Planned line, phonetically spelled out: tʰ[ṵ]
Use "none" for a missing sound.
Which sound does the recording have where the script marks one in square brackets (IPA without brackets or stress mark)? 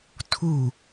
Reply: u